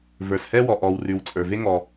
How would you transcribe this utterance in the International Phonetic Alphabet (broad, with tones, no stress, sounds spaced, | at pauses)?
v ə˞˩ s h ɛ˥ w ɔ˩ ʔ ɔ˩ w r ʉ˩ w t͡sʼ ə˞˩ v e˥ ŋ ɔ˩